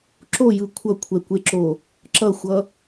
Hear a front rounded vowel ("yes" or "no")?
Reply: no